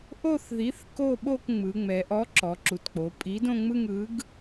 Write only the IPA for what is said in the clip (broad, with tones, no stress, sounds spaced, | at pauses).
ʔ o˥˧ θ ð i˨˥ θ k o˥˧ ɓ o˥˧ k ŋ͡m ɯ˩˧ ŋ͡m ɛ˩˧ ʔ ɔ˨˥ ǁ ɔ˩˧ ǁ u˩˧ t k͡p o˩˧ pʼ i˨˥ d õ˥˧ ŋ͡m ɯ˥˧ ŋ ɯ˨˥ ɡ